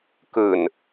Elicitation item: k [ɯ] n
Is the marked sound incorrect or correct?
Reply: correct